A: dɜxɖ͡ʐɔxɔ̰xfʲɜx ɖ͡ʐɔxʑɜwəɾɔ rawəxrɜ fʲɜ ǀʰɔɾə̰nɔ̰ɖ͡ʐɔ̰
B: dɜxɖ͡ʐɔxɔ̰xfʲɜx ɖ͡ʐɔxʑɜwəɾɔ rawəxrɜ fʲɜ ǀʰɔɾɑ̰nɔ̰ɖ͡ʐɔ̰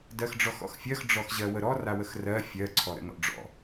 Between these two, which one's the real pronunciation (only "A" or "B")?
A